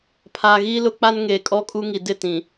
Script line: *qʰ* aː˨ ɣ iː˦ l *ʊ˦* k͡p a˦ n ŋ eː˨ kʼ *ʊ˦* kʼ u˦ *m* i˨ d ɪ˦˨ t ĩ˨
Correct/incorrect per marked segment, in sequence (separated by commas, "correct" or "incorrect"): incorrect, correct, incorrect, incorrect